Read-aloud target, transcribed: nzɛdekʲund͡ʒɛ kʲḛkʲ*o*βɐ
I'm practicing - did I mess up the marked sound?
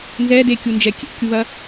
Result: yes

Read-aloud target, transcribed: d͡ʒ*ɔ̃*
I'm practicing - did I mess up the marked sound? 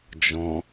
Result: no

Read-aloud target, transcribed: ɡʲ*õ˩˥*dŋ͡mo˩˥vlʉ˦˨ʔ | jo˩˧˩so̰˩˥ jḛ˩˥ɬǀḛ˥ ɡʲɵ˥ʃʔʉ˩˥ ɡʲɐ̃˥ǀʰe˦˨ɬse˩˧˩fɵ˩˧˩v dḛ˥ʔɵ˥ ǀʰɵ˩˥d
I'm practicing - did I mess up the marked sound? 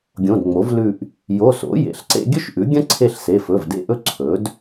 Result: yes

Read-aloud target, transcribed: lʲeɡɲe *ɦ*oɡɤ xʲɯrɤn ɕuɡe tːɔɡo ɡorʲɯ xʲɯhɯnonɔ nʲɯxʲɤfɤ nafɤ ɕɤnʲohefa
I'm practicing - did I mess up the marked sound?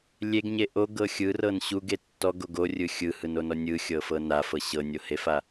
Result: yes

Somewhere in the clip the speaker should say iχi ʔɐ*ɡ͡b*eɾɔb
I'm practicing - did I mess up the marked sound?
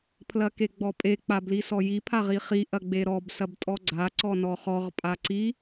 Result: no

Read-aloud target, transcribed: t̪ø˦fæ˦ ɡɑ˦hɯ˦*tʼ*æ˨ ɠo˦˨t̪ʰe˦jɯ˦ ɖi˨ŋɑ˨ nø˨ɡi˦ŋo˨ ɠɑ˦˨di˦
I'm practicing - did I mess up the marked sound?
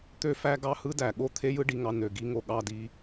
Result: yes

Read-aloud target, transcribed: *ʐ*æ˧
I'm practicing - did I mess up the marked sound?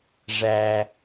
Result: no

